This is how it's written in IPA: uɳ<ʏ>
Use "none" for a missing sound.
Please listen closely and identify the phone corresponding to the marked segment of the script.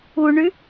y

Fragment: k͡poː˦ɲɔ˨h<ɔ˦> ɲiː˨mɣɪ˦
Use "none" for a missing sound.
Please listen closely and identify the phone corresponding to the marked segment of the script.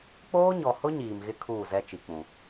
ʊ˦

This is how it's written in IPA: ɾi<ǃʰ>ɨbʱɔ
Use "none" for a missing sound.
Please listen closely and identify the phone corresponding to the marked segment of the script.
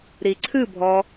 ǀʰ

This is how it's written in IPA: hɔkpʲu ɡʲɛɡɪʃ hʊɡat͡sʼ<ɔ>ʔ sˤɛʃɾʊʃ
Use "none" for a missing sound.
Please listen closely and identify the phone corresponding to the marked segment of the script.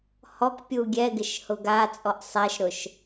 ɔ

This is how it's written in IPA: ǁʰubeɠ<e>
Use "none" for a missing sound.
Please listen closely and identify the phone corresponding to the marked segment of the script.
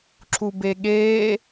eː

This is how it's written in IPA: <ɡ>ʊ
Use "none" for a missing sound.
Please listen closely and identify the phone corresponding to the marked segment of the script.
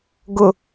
ɡ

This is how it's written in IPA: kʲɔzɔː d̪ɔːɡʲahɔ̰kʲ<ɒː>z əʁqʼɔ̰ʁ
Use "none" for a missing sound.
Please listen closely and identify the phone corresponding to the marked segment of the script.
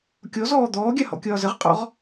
ɒː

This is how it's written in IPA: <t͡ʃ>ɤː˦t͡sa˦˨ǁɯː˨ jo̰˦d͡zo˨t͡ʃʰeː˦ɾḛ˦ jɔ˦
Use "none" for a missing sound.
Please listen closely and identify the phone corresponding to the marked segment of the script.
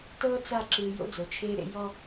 t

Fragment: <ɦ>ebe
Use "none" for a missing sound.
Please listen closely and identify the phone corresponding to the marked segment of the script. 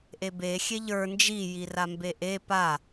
ʔ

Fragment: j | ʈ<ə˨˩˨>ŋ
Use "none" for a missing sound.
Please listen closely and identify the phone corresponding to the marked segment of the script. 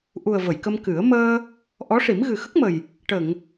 ə˨˩˨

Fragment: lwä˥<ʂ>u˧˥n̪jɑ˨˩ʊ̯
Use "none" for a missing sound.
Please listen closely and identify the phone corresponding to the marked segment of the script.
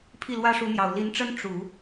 ʂ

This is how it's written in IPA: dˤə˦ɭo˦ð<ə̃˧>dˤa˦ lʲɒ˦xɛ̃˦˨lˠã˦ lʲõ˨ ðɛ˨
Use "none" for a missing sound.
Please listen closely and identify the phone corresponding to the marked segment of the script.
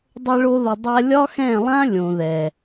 ə˧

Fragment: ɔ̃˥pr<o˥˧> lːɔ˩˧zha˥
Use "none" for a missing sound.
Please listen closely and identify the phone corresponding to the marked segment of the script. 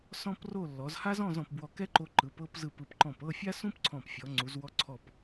o˥˧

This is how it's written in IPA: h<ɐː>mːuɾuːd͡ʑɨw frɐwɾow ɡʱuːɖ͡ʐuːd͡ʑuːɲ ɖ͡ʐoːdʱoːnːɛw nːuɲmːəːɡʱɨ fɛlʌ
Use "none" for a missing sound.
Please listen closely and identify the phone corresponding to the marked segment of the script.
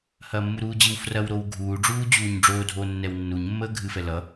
ɐː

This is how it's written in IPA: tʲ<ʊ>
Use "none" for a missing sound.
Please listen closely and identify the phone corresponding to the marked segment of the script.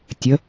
ə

